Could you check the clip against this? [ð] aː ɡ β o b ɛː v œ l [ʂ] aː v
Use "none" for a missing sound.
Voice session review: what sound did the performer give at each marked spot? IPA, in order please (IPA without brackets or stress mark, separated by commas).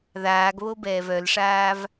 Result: ð, ʂ